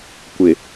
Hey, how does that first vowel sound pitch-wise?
low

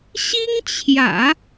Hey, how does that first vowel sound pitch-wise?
high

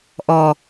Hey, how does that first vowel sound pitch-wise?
low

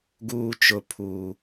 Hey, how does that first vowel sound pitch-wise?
high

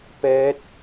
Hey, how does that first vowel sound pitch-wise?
rising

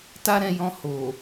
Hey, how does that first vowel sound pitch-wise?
high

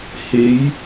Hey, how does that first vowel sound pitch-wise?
rising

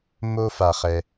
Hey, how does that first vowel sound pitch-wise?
high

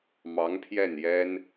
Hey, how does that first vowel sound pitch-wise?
rising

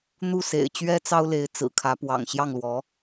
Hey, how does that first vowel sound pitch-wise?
falling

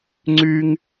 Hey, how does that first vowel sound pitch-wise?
high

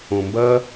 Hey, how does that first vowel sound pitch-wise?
low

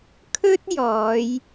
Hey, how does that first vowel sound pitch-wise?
high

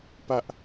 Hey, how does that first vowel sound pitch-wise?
high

